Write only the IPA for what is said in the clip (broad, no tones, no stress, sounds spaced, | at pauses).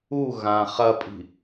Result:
u ɣ ã χ ɐ pʼ i̤